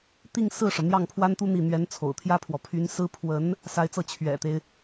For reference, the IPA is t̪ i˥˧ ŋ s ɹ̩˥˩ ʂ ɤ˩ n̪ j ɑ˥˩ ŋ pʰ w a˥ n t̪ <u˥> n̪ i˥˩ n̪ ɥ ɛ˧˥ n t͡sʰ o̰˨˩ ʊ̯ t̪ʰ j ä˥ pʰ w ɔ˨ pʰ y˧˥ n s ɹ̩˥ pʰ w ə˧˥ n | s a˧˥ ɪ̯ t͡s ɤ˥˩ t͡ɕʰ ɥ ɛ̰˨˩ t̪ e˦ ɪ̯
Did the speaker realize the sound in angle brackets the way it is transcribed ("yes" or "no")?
yes